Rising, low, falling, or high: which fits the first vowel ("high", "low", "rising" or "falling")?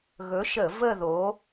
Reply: rising